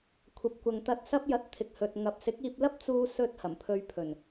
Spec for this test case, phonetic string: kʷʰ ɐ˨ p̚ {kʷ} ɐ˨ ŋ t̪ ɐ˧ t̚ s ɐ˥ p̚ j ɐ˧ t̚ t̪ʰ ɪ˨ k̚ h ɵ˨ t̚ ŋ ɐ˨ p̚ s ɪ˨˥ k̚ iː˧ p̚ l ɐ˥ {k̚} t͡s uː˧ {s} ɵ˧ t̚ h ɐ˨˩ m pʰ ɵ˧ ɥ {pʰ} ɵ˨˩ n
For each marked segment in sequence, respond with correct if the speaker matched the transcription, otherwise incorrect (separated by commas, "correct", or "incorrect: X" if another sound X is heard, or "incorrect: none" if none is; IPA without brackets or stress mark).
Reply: correct, incorrect: p̚, correct, correct